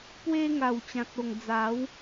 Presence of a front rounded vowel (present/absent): absent